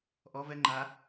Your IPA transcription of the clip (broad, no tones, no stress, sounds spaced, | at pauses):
ʔ ɔ v ɛ ŋ͡ǃ a